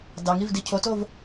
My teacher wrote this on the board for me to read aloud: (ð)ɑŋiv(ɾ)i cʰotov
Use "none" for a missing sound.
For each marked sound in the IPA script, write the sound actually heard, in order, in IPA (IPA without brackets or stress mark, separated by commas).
d, d